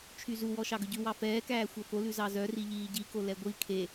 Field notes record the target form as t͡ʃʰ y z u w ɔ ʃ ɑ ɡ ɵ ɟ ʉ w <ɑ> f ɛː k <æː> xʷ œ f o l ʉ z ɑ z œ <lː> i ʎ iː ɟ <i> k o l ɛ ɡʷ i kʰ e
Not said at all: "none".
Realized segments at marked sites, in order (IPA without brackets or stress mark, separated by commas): ɑ, æː, r, i